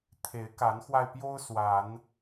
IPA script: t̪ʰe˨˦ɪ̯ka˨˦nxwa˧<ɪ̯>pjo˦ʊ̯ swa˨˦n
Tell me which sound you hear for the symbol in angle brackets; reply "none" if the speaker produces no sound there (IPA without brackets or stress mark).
ɪ̯